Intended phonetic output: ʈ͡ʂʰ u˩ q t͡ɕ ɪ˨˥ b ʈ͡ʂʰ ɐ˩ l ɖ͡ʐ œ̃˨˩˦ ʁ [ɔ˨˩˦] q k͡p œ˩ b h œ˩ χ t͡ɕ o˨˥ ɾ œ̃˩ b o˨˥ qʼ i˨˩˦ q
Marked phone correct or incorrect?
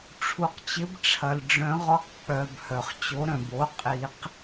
incorrect